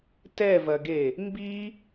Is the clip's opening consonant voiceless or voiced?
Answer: voiceless